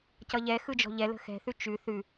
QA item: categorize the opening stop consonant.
plain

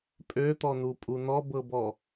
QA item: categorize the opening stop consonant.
ejective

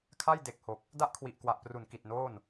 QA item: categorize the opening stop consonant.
aspirated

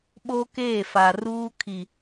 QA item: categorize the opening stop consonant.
implosive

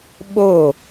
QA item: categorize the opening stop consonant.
implosive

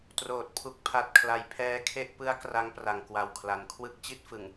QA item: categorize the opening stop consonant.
plain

